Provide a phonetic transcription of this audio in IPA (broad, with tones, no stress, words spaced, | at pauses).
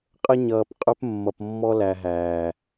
qʼə˦ ɲʌː˨p qʼɵ˦p mːʌ˨pmːɔ˦læ˨ ɦæː˨